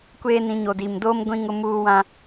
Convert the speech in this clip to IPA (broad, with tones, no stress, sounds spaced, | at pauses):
kʷ eː˦ n ĩ˨˦ ɲ o˨ d i˨ m d o˦ m ɡʷ ĩ˦ ŋ ʊ˦ m uː˦ w ã˦